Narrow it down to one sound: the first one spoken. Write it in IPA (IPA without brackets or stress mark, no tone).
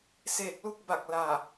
s